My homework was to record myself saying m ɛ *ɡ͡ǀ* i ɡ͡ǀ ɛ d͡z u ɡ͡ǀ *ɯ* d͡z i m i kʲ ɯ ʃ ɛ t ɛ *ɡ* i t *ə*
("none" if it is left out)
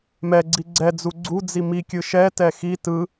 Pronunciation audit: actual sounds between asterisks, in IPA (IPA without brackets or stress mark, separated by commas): ɡ͡ǀ, u, x, ɯ